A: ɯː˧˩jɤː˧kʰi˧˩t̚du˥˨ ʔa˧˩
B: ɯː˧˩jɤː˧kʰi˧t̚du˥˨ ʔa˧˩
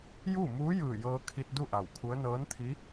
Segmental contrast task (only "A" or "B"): B